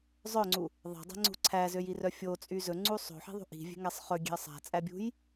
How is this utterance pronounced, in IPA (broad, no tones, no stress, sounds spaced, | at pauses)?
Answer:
zˤ œ ŋ͡ǀ u | ðˤ æ̤ dˤ æ̤ ŋ͡ǀ ṳ ǀʰ æ z ø j i r œ fʲ o t͡sʼ y z ɵ ŋ͡ǀ u sˤ o̤ ħ i̤ ðˤ ṳ ʔ i̤ vʲ e̤ ŋ æ sˤ χ ɵ ɡʲ e̤ ə̯ sˤ æ̤ t͡sʼ æ bʲ ṳ j